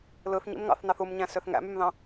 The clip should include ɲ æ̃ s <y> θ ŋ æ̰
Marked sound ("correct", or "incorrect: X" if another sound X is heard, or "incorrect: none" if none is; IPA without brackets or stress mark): incorrect: ø